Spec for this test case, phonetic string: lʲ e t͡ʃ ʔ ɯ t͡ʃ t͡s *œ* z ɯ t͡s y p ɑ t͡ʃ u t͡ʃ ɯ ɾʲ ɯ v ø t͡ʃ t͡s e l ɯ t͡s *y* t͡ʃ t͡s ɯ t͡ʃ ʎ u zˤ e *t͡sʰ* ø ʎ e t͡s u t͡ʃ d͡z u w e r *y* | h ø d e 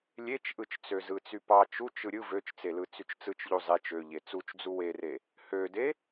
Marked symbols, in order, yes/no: no, yes, no, no

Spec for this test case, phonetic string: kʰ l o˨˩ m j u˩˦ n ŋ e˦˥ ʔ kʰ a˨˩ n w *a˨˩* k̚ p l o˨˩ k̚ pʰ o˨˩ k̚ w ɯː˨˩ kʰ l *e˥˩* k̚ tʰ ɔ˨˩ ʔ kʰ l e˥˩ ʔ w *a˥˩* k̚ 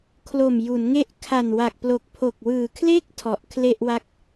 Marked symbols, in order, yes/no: yes, yes, yes

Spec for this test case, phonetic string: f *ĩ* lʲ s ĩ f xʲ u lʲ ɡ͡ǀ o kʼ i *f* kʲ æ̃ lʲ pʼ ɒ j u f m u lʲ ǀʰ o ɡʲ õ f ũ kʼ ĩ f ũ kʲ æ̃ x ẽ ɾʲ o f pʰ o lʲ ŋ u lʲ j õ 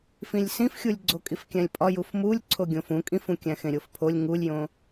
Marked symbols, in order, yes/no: yes, yes

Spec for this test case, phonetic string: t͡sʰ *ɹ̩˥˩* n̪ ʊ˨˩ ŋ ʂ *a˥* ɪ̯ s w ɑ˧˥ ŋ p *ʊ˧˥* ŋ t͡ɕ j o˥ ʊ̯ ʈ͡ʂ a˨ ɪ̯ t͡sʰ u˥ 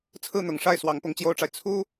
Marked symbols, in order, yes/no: yes, no, yes

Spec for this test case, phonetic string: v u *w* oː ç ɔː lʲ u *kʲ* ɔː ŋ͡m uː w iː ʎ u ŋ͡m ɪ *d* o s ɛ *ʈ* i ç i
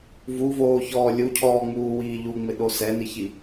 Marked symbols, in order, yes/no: no, no, no, no

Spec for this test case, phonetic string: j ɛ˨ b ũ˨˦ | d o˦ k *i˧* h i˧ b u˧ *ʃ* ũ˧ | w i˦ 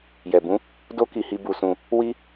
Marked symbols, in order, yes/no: yes, no

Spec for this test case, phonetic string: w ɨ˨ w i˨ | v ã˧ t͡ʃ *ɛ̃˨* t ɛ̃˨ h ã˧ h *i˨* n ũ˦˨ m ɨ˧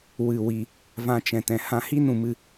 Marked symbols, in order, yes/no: yes, no

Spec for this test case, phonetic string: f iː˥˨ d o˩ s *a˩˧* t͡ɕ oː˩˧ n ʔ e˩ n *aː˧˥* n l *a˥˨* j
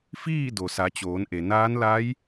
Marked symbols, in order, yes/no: yes, yes, no

